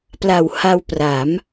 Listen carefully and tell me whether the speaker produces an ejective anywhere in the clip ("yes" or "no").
no